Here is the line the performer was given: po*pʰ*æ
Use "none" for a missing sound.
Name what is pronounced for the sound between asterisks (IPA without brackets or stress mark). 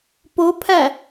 pʰ